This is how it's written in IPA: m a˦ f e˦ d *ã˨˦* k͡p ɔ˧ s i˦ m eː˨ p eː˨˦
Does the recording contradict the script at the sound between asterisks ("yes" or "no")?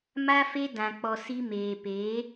yes